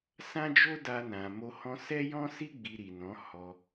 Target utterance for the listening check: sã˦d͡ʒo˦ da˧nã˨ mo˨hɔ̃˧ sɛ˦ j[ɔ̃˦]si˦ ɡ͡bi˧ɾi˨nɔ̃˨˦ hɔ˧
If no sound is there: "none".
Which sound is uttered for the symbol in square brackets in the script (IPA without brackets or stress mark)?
ɔ̃˦